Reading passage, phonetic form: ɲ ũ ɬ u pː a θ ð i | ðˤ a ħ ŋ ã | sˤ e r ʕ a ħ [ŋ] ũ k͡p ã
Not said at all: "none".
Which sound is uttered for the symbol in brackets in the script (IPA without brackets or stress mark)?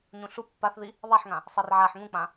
ŋ